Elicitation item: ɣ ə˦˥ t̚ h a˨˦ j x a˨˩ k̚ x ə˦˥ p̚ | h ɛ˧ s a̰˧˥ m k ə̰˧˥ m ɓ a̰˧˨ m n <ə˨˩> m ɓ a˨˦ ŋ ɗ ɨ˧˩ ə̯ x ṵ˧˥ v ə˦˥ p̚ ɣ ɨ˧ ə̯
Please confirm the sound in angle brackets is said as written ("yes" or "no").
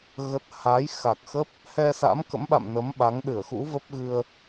no